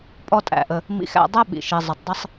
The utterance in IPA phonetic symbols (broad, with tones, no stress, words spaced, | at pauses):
pʼɔ˧tʼæ̰˩ʔə˩ | mḭ˧xæ̰˧ dˤɛ˥ɓḭ˩ ʃi˩zˤə˩tˤ dˤɪ˧sˤ